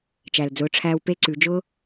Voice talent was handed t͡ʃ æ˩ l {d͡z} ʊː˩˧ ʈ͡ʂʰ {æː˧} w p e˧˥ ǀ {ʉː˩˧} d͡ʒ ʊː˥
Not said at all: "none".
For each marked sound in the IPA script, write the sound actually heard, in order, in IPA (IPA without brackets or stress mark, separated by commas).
d͡z, æː˧, ʉ˩˧